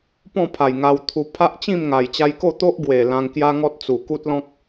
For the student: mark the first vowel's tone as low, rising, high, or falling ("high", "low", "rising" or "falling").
falling